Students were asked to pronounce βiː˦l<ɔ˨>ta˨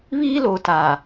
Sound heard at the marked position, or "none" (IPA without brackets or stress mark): o˨